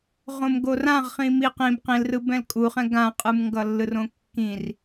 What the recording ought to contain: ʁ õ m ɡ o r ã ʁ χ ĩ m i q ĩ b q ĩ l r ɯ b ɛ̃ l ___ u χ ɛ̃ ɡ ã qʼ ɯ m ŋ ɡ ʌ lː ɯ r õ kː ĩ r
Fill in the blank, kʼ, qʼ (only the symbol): kʼ